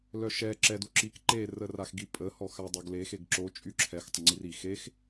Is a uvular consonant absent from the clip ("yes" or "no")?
yes